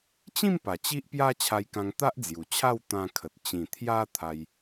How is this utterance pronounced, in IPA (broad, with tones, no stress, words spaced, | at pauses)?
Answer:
t͡ɕĩ˥˧mpa˨˩ t͡ɕi˦ʔpja˦ t͡ɕʰa˧jkã˧ŋ t̪a˦ʔd͡zju˨˩t͡ɕʰa˥˧w t̪ã˧kʰə˨t̚ t͡ɕĩ˨˩ t̪ʰja˦ t̪ʰa˦j